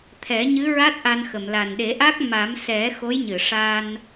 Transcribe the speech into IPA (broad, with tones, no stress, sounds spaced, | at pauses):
t̪ʰ ɛ˨˩˦ ɲ ɨ˧˥ ɹ a˦˥ t̚ ʔ a˧ n x ə˨˩˨ m l a˨˩ n ɗ e˨˩˦ ʔ a˦˥ k̚ m a˨˩˦ m s ɛ˨˩˦ x o˧˥ j ɲ ɨ˨˩˨ ʂ a˧ n